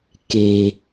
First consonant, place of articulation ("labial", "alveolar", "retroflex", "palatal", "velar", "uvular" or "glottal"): velar